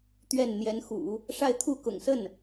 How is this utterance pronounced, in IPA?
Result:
t̪ɥɛ˥˩nn̪jɛ˧˥nxṵ˨˩˦ | ʂa˥˧ɪ̯t̪ʰu˥˩ kʊ̰˨˩ŋsə˥˩n

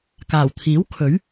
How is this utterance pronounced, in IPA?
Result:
kaː˨˩wt̪ʰiː˨˥w kʰɵ˨˥ɥ

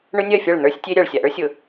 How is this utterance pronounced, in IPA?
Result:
ɳʊ˦nʲɜ˦˨fʲɐ˦˨ɭ n̪ə˞˦sʲtʲe˦ɾʲɐ˨ɭ sʲa˨ʔə˞˦sʲʊ˨

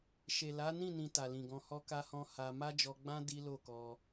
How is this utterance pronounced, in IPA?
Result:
ʃe˨ la˨˦nĩ˦˨ nĩ˧ta˨lĩ˨ɡɔ̃˧ hɔ˦ka˦hɔ̃˦ ha˧ ma˦d͡ʒɔ˧ɡ͡bã˦ di˦lo˦˨kɔ˧

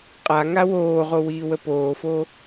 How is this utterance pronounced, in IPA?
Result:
qʼa ŋawoːʁo wiːwəpoːfo

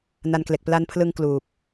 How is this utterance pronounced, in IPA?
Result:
na˧nkle˨˩k̚ pla˧npʰlɯ˧ŋ kluː˨˩p̚

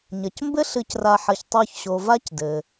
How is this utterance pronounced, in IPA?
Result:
ɲɐ˩cmbɘ˦ ɬɨ˨cra˨ ħɐ˨ç tˤo˨çɕo˩ va˥c dɘ˩

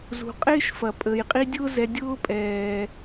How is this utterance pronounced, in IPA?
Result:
zṳ˩ qʼɪː˥ʃfɐ˩pʼə˩j qʼi˦dʲʊː˥zɛ˨ dʲʊː˥pʼɛː˩

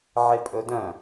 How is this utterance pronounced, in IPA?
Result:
ʕɪpʼɵdœ̃

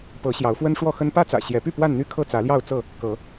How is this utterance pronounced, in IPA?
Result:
pɤ˨˦ ɕjɑ˨˦ʊ̯fwə˦nʂwɔ˥˨xə˦n pä˦t͡sä̰˨˩ɕjɛ˨˦py˥˨ pwa˥˨nn̪y˦ kʰɤ˥˨t͡sä˨˦ljɑ˥˨ʊ̯t͡sɤ˥˨ | kɤ˨˦

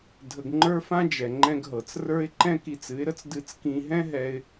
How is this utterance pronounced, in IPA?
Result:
dʱə˧ɡŋ͡ǃə˞˦fã˦ d͡ʒɛ˨ ŋ͡ǃɛ̃˧ɡɦɤ˨t͡s rə˞˧ɪ̯ ǃɛ̃˦ki˧t͡sɨ˨˦ɪ̯ɾə˦t͡s dɨ˧t͡s kĩ˧ɦɛ̃˦ ɦɛ˧ɪ̯

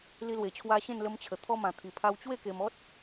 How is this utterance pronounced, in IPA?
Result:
li˧lwe˨˩t͡ɕʰwa˧ ɕẽ˥˧nlə˧mt͡ɕʰə˨˩ t̪ʰɔ˧mã˨˩t̪ʰi˨˩ pʰa˧wt͡ɕwe˥˧ke˧m ɔ˦t̚

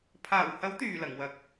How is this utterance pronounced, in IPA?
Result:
pʰaː˨˩whɐ˨˥wt̪yː˨˩ lɐ˨˩ŋwɐ˨˥k̚

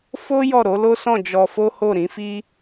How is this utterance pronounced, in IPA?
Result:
fo˦ jɔ˦˨ɾo˨˦lo˦sɔ̃˦˨ d͡ʒɔ˧fo˦ ho˦˨ɾĩ˨˦fi˦

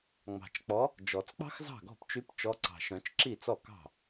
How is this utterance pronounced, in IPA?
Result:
ŋ͡mɑ̤˨˩t͡ʃk͡pɔ˨˦ | d͡ʒɔ˨˩˦t͡sk͡pɑ̤˥xzɑ̤˥˩ɡɔ̤˥˩p t͡ʃy˨˦p t͡ʃɔ˨˦ǀɑ̤˨˩ʃœ̃˨˩˦t͡ʃ ǁi˥˩t͡sɔ˥˩kɑ̤˥˩

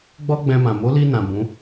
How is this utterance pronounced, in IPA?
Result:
ɡ͡bɔ˦ɡ͡bɛ̃˧mã˨ mo˨˦li˧nã˨ bũ˨˦

